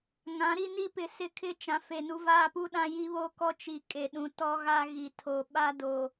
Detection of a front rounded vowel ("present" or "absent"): absent